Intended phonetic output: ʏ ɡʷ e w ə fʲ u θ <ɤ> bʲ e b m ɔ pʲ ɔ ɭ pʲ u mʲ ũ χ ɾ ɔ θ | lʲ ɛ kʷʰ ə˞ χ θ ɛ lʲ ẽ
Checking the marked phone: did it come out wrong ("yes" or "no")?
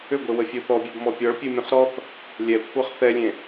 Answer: yes